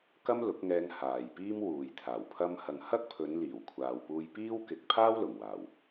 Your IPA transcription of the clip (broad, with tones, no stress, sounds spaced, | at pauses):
k ɐ˥ m l ʊ˨˥ k̚ ŋ ɛː˧ ŋ h aː˨ j p iː˥ m w uː˨ j t̪ʰ aː˨˩ w pʰ ɐ˧ m h ɐ˨ ŋ h ɐ˥ k̚ pʰ ɵ˨˧ n l iː˨˩ w kʷʰ aː˨ w p uː˧ j p iː˥ w k ɪ˨ k̚ pʰ aː˥ w l ʊ˨˩ ŋ w aː˨˩ w